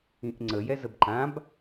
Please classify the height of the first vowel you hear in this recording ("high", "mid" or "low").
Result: high